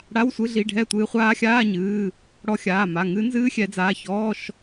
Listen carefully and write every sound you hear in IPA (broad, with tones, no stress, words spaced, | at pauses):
ɽa˧˥˧wsʷɨ˧˥˧ ɮi˩˧˩ ɖʱɛ˥˨tʷɨː˧ χʷaː˦˥ xʲaː˧˥˧ɲɨː˩˧˩ | ɽɔ˧xʲaː˩˧˩ ma˩˧˩ŋɨ˦˥ nzɨː˦˥xʲɛ˨˩˦d͡zaː˩˧˩çɔː˧˥˧ʃ